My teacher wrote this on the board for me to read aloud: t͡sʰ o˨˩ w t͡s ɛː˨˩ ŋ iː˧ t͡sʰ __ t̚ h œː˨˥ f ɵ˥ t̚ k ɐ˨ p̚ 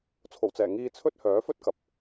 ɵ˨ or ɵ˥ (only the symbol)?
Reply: ɵ˥